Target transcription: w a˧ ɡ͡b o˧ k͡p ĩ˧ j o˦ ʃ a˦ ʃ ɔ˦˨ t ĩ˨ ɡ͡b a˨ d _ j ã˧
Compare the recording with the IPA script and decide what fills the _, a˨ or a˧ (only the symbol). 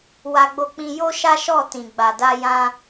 a˧